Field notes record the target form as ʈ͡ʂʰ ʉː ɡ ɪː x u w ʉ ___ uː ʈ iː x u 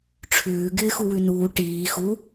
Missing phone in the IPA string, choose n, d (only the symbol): n